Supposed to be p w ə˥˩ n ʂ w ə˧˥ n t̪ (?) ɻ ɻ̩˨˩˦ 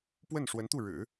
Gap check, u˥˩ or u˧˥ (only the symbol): u˥˩